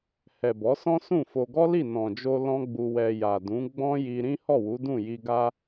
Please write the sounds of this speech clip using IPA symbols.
h ɛ˨ b ɔ˨˦ s ɔ̃˦ s ũ˦˨ f o˧ ɡ ɔ˦ l i˦˨ n ɔ̃˨ d͡ʒ o˧ l ɔ̃˦ ɡ͡b u˧ w ɛ˧ j a˨ d ũ˨˦ ɡ͡b ɔ̃˦ j i˧ ɾ ĩ˦ h ɔ˦˨ w u˨˦ d ũ˦˨ j i˧ ɡ a˦

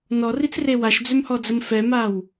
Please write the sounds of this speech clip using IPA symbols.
n ɔ r i t͡s r e w a ʃ d͡z ø m h ɔ d͡z ə m f ɛ m a w

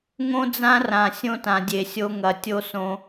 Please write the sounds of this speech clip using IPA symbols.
ŋ õ˦ d͡z ã˦ r ã˨ sʲ õ˦ t ã˨ dʲ e˨ sʲ o˦ ŋ ɐ˨ tʲ o˦ s õ˦

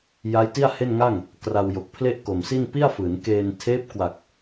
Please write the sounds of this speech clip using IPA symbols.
j a˦˥ j t i˥˩ a̯ h e˥˩ n ŋ a˥˩ ŋ | k r a˧ w j o˨˩ k̚ pʰ l e˥˩ ʔ k o˨˩ m s i˥˩ n p i˥˩ a̯ f ɯː˩˦ n k eː˧ n tʰ eː˦˥ p̚ k w a˨˩ k̚

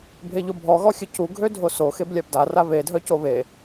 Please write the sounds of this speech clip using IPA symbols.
bʱ e ʎ o bʱ ɔ ɣ ɔ xʲ ə c u ɡʱ ø dʱ o s o x e b lʲ a b d a r a β e dʱ œ c o β e

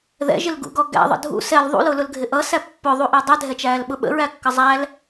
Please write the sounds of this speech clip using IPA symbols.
ð ɛ̰ ʒ ɪ l ɡ ṵ ɡ ɔ ɡ æ̰ ðˤ ə̰ dʱ ṵ s ɛ l ðˤ ṵ l ʊ l ʊ l ɡʱ ɪ ʔ ʌ s æ pː ʊ ðˤ u ʔ ɜ dˤ ɛ dʱ ɛ t͡ʃ æː l ɓ ʊ ɓ ə̰ ɹ æ kː ʌ zˤ æ l

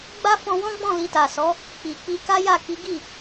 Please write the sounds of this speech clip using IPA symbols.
ɡ͡b a˦ f ɔ̃˧ w ɔ̃˦ ɡ͡b ɔ̃˦˨ l i˧ t a˨ s ɔ˨˦ | k͡p i˨ k͡p i˧ k a˦ j a˦˨ k i˨˦ ɡ i˦˨

